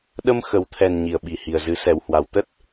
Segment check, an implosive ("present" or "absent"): present